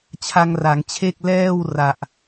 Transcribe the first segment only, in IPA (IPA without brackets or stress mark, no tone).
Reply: t͡ɕʰ